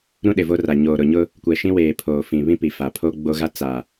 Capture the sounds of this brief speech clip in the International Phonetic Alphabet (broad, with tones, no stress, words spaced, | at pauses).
ɾũ˦ɗɪ˨vo˦ra˨ ɲoː˨ɾʊ˨ɲʊ˦ | kʷɛ˨ʃĩ˦weː˨ pʰoː˨fĩ˨βĩ˦ pi˨fa˨pʰo˦ ɡ͡bo˦ɣa˦ t͡sa˨